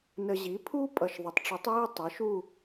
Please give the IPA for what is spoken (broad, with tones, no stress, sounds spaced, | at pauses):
n ə˨ ʑ i˩˥ pʰ u˦˥ pʼ ʌ˨ ʃ ðˤ ə˩˥ tˤ ʈ͡ʂ u˩˥ tˤ j i˦˨ tˤ ɪ˩˥ ʃ u˦˨